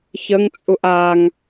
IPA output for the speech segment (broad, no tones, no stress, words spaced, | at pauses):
çəŋt͡sʼuʔ aŋ